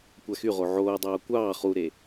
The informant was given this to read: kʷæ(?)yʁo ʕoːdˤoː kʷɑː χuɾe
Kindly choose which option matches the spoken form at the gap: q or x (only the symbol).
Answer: x